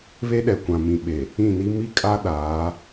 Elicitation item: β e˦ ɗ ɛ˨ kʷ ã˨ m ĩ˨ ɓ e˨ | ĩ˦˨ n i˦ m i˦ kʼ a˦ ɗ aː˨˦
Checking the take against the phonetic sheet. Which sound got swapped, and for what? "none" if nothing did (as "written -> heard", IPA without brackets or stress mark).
none